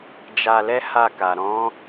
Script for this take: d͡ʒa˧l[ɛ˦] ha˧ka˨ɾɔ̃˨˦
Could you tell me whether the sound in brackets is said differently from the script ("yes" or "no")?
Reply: no